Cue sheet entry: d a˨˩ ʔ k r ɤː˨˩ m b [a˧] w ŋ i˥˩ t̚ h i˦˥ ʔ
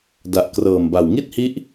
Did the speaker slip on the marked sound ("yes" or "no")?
yes